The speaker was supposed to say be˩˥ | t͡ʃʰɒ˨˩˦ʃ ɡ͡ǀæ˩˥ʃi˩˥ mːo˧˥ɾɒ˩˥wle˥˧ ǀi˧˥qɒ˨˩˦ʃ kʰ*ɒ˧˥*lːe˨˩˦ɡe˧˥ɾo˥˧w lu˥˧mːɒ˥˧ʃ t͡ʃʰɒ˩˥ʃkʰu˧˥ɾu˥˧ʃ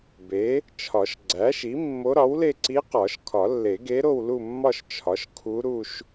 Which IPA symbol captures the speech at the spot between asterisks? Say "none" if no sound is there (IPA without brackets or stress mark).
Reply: ɒ˨˩˦